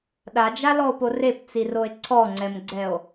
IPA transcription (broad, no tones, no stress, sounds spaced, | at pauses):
ɗ a d͡ʒ a l ɔ o̯ p o r e p t͡s i r o e̯ ǀʰ ɔ ŋ͡ǀ ɛ m ɡ͡ǀ ɛ o̯